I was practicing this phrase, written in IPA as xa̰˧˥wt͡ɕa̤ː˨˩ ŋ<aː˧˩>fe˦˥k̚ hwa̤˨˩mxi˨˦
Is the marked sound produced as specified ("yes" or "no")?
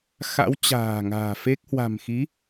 no